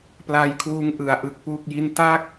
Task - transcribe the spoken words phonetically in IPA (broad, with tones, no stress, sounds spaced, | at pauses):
p l a˧ j kʰ w uː˦˥ ŋ ʔ ɯ˩˦ a̯ ʔ ɯ˨˩ k̚ p u˥˩ k̚ j i˥˩ n t a˥˩ k̚